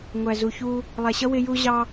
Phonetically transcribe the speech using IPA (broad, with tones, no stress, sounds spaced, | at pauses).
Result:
ŋʷ æ˨ z u˨ ç u˦ | lˠ ɛ˨ ɕ ʌ˦ w ɪ˦ j u˦ ʑ ɑ˦